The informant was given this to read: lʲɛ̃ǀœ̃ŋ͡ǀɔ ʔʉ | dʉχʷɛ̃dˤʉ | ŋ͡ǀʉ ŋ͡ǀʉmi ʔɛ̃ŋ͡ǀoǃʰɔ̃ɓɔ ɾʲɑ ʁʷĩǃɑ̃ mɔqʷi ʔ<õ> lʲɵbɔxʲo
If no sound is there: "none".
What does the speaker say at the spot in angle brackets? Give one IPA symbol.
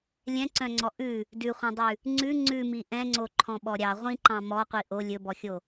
o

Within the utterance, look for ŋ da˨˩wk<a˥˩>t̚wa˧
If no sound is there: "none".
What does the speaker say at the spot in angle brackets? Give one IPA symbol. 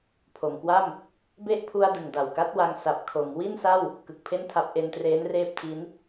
a˦˥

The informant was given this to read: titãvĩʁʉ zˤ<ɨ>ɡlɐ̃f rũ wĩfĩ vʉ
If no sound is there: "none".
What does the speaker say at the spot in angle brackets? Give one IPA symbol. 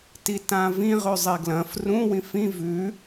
e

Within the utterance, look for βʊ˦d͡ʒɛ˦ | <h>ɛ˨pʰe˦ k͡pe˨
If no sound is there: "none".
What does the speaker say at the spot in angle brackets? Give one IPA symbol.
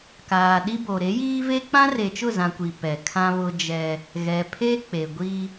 ɣ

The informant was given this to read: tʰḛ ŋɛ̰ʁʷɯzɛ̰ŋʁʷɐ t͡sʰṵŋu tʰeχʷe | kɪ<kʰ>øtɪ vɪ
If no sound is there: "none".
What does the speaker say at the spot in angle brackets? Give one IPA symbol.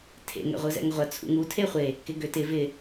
ɡ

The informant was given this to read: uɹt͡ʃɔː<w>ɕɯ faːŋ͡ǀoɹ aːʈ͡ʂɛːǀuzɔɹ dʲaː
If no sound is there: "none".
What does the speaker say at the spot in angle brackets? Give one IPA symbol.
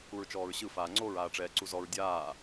ɹ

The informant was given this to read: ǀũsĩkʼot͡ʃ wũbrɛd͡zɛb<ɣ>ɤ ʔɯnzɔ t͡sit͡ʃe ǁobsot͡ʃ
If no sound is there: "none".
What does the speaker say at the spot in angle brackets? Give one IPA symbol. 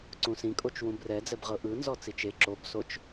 ʁ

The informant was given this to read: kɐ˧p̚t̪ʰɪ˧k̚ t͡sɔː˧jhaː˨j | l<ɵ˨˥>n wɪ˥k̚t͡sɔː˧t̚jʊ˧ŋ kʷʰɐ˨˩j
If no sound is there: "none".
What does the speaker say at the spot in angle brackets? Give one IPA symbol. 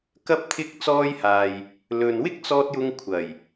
ɵ˨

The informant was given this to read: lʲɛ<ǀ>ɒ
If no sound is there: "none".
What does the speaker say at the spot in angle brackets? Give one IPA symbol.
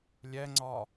ŋ͡ǀ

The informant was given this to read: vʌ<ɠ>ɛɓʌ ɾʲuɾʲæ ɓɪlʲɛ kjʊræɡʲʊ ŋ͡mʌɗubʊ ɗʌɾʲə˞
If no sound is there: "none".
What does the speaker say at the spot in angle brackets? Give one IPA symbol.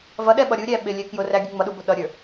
ɗ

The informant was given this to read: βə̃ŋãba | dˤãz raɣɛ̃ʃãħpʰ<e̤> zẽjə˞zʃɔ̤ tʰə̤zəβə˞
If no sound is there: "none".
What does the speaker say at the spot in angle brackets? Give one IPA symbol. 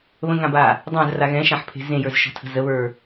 e̤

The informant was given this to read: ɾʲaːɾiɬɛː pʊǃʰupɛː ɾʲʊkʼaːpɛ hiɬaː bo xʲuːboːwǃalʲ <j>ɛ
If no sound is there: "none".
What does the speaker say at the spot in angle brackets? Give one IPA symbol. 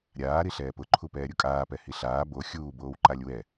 w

